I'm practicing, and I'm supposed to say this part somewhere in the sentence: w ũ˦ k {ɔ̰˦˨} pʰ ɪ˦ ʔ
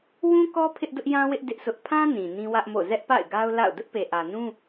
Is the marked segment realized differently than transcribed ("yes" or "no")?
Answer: yes